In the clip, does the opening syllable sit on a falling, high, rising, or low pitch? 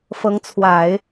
rising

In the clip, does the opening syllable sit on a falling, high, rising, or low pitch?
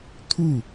falling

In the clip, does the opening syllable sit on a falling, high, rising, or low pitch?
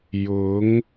rising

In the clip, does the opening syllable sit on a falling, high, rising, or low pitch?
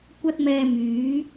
high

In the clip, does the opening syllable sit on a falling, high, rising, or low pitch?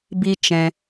high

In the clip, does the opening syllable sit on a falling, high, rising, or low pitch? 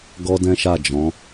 high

